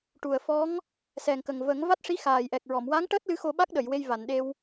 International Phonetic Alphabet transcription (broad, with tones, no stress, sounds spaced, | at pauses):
ʈ u˨˩ ə̯ f ɔ˧˥ ŋ | s ɛ˨˩ ŋ k ə˨˩ ŋ v ə˨˩˦ ŋ v a˦˥ t̚ ʂ i˧˥ x aː˨˩ j ʔ ɛ˨˩ k̚ ɹ ɔ˨˩˨ m w a˧˥ ŋ ʈ əː˦˥ t̚ l ɨ˧˥ x o˧ ɓ a˦˥ k̚ ɗ ə˨˩˨ j w e˧ j v a˨˩˨ n ɗ e˧ w